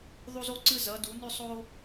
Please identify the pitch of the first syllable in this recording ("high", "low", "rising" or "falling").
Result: high